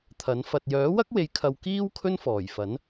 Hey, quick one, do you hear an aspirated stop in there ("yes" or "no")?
yes